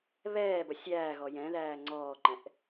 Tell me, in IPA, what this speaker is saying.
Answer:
βɛːbʌ sʲæːɣɔ jɛ̃ðæː ŋ͡ǀɔːǃɛ̃ʔ

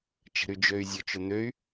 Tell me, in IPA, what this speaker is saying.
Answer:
t͡ʃə̤ɾyd͡ʒøy̯ zʲʊt͡ʃʊ n̪øy̯

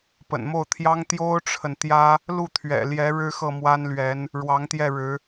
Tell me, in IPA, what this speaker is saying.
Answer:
pə̰˨˩nmo˥˩ʊ̯t̪ʰjɑ˥ŋ t̪jo˥ʊ̯ʈ͡ʂʰə˨nt̪jä˥ | lu˥˩t̪ʰɥɛ̰˨˩ ljɛ˧˥ ɻɻ̩˥ xɤ˥˩mwa˥nlɥɛ˧˥n | ɻwɑ˧˥ŋt̪jɛ˥˩ɻɻ̩˧˥

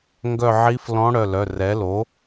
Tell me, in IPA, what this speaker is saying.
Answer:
ŋɡœ˦˨ʕi˧˥flɔ̃˧˥ ɽœ˩˧˩lœ˩˧˩rɛ˩˥lo˩˥

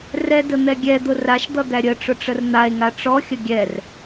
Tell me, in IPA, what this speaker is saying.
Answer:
rɛdə n̪ɛɡʲɛd̪ʊ raʃd̪ʌ d̪æɾʲəʈ͡ʂʊ ʈ͡ʂərn̪ae̯ŋa ʈ͡ʂɔxʲə ɡʲɛr

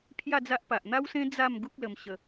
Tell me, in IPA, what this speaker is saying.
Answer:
pʰja˥˧d͡za˦ʔpa˨ʔ n̪a˦wsẽ˦ d͡za˥˧m ɡu˦k̚lə˧mɕə˧

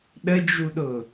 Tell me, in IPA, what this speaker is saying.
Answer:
ɗəd͡ʒuɗʊ

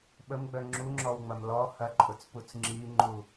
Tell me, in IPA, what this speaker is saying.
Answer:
ɓəmɡ͡bœ ŋ͡ǁuŋ͡ǁɔwŋ͡mɐm lɔ hɐǃʼʊt͡sput͡s ŋ͡ǁiŋ͡ǃu

